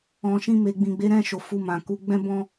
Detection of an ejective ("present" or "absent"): absent